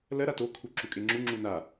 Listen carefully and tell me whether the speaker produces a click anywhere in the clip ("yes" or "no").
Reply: yes